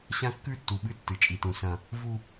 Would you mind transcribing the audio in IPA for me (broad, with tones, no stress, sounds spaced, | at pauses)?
ɕ ã˦ kː ʉ˦ tː u˨ ɓ ɨ˦ tː ɨ˨ t͡ʃʼ i˨ t ũ˨ s ɐ̃˦ | v u˦